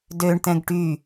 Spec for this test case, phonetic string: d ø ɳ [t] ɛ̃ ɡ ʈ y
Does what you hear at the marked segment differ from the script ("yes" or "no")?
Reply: no